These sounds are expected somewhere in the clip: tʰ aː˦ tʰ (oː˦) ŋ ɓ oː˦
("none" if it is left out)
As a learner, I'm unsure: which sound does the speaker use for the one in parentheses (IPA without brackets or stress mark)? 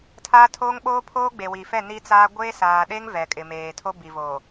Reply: oː˦